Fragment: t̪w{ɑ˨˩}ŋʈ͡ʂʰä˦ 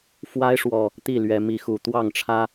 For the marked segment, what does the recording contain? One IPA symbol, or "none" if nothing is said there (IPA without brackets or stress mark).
ɑ˥˨